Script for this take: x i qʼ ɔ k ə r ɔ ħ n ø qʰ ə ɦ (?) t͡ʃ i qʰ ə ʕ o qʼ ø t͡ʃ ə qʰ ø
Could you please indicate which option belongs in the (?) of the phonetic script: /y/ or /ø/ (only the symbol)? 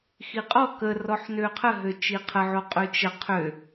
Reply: ø